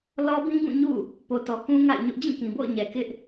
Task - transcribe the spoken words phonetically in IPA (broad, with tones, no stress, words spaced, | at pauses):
lɔ˦bĩ˦ɡũ˦˨ ɲṵ˦˨ | po˨tɔ˨ kũ˦ŋa̰˦˨ɪ̯ɲʊ˦ʔ d͡ʑĩ˦˨kĩ˨bo̰˦˨ʊ̯ɲɛ˨ kɪ˦ʔ